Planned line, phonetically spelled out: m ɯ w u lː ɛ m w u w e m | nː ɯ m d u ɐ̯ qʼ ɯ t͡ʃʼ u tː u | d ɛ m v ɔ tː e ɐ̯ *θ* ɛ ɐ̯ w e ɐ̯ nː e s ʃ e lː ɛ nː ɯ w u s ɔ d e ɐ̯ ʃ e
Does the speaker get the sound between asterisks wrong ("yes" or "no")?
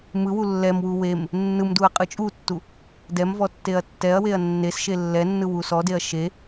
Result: yes